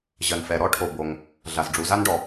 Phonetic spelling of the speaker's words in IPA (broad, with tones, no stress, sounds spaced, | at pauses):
ʑ ɜ˩ n f ɛ˩ ɾ ɔ˥ ʈʰ o˩ b o˩ ŋ | ɮ a˩ z ɖ͡ʐ u˩˧ z a˥ n ɖ ɔ˩